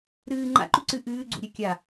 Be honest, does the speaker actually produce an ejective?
no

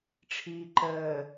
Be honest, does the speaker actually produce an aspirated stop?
yes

